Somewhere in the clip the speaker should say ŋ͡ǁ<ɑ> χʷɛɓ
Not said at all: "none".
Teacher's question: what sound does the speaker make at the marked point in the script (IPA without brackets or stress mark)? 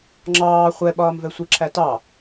ɑː